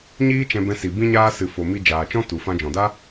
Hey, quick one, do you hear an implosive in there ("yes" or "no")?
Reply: no